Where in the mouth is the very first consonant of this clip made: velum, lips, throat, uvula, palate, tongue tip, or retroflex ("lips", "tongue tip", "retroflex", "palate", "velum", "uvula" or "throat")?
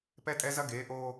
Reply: lips